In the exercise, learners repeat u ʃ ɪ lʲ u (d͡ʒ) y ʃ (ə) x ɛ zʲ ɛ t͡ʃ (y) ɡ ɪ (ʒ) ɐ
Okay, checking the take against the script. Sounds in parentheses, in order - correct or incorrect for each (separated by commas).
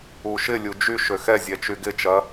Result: correct, incorrect, correct, incorrect